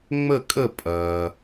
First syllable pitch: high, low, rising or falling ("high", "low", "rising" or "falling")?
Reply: falling